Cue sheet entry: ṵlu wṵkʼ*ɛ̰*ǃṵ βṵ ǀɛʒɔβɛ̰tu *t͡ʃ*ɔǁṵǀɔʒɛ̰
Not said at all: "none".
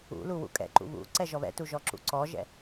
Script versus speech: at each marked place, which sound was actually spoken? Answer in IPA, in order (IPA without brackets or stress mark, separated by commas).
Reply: ɛ̰, ʒ